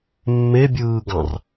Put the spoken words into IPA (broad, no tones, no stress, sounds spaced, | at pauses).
mː e bʲ ɯː ɡ ɑ̃ r